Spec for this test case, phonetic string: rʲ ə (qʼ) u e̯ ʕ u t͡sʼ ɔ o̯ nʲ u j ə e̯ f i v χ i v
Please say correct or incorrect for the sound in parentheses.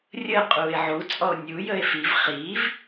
correct